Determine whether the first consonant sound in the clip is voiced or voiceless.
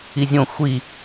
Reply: voiced